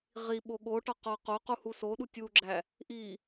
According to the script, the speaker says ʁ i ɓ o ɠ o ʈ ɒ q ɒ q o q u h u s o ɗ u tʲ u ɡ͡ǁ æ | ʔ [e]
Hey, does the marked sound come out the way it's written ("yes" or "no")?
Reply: no